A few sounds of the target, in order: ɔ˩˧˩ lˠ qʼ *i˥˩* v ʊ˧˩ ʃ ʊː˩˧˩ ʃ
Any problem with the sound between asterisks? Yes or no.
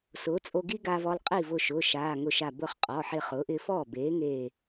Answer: no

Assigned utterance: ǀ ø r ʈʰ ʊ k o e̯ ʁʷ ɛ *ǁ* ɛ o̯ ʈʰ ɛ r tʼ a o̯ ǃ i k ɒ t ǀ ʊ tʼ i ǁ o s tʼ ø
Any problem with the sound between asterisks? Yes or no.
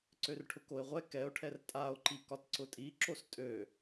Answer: yes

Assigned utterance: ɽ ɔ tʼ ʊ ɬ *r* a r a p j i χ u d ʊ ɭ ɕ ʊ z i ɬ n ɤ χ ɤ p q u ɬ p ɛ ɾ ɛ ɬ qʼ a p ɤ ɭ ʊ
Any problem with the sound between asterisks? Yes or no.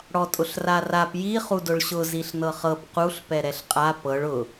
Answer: no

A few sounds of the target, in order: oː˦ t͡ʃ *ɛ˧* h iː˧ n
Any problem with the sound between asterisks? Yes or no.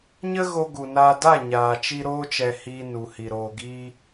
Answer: no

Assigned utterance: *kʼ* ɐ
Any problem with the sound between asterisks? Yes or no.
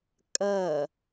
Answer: no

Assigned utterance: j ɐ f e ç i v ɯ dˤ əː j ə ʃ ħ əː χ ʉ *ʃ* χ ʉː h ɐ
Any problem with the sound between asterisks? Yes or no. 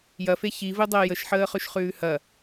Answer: no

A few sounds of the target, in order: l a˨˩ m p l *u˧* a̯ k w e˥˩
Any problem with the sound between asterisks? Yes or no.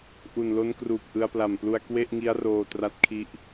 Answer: no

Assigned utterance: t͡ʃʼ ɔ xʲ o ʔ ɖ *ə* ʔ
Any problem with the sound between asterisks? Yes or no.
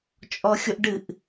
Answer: yes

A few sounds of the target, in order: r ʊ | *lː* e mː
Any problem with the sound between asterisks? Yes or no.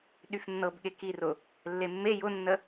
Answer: no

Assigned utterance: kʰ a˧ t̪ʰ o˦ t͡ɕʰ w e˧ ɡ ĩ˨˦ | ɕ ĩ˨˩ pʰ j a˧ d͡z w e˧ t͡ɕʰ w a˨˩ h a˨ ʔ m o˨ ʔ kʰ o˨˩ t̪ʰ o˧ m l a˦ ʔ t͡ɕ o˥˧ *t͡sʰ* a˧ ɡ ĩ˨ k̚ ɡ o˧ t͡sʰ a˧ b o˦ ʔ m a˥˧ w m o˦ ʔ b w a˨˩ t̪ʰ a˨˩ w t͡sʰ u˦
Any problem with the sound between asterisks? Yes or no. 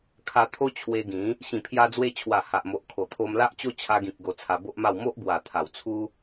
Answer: yes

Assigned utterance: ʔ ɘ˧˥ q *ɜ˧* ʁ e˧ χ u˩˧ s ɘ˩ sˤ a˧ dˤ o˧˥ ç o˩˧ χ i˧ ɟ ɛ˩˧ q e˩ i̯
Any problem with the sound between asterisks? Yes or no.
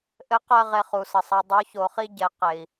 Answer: no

